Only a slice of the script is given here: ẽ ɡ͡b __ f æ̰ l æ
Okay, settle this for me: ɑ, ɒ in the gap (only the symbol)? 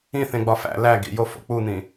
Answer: ɒ